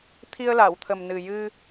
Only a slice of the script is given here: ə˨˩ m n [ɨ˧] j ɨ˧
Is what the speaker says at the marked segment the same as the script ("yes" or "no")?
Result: no